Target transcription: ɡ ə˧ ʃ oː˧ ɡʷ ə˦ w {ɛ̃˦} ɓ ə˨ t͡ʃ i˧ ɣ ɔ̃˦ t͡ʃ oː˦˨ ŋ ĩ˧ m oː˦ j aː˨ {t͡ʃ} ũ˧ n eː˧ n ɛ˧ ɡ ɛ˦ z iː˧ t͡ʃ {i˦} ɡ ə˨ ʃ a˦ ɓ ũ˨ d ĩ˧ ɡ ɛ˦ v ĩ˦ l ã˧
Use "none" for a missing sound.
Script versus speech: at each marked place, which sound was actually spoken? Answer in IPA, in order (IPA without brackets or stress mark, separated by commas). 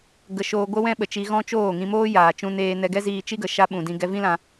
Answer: ɛ̃˦, t͡ʃ, i˦